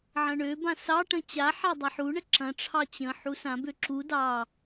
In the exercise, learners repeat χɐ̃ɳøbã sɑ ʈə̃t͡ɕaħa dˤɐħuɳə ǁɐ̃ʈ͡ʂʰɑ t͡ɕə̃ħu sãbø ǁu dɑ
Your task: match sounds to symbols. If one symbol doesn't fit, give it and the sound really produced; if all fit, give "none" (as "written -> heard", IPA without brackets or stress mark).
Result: χ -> ʕ